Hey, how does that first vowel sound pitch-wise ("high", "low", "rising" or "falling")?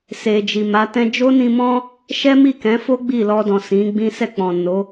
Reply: low